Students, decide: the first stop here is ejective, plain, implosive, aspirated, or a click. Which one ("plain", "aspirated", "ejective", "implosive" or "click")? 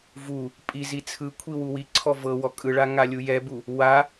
ejective